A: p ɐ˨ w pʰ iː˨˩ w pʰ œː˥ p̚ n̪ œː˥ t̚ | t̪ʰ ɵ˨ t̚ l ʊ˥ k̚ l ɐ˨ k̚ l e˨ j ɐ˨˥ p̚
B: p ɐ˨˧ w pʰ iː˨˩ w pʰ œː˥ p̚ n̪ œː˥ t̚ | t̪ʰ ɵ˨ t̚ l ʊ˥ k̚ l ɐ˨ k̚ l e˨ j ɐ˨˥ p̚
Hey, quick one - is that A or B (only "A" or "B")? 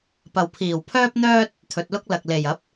A